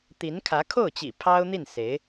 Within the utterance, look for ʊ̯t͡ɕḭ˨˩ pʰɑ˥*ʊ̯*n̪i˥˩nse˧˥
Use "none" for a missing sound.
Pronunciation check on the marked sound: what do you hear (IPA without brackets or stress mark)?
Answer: ʊ̯